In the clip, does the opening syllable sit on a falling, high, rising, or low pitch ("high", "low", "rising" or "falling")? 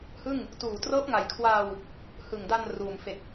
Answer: falling